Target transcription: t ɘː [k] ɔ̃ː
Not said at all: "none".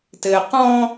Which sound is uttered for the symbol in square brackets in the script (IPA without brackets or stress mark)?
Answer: q